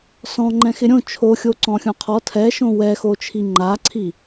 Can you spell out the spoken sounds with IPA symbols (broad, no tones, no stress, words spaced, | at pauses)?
sɔ̃ŋ͡ǃɛ̃ xɪɾʲõ t͡ʃʰoxʲo ǀɔ̃xʲõqʰɔ tʰɛ ʃõwɛxot͡ʃʰi ŋ͡ǃaǀʰi